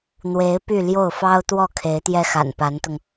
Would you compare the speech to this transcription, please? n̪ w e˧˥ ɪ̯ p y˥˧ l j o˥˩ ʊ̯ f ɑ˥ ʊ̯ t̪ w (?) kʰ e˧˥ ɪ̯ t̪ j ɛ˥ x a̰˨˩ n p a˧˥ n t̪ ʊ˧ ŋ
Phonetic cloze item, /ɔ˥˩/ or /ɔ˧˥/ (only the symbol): ɔ˥˩